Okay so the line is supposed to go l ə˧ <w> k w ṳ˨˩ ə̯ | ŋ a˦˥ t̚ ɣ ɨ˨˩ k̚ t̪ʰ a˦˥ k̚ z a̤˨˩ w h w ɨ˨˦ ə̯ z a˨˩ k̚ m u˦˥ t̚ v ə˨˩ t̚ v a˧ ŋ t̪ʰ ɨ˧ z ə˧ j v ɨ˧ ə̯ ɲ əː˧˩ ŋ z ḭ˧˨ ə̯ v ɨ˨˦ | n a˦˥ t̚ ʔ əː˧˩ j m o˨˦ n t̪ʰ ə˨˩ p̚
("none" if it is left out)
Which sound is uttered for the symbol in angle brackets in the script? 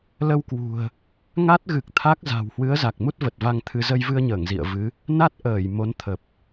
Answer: w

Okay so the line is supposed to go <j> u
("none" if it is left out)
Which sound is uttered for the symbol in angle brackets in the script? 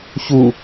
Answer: ç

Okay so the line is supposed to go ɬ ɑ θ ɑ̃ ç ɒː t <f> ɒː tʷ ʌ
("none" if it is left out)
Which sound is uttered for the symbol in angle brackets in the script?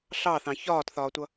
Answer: θ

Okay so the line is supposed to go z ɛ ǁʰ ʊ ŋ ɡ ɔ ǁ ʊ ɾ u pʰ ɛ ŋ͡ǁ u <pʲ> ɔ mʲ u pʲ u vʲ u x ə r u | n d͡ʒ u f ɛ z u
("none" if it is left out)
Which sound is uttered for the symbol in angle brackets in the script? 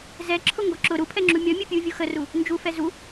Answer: mʲ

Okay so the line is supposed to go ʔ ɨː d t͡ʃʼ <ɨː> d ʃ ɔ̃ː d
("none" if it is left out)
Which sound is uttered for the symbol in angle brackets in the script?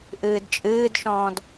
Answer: ɨː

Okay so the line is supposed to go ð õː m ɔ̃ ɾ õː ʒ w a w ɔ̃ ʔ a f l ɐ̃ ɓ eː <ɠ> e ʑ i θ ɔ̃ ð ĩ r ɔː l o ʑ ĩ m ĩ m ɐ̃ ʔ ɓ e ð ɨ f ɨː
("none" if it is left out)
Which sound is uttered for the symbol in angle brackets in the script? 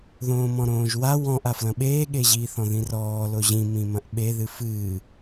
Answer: ɠ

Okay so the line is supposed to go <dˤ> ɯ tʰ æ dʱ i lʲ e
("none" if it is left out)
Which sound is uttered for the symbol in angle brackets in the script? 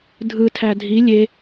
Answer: dʱ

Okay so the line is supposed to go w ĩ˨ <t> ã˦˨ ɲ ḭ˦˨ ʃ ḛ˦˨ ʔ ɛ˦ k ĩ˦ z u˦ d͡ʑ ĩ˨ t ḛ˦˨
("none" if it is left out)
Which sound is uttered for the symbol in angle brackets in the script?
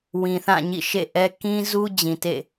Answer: θ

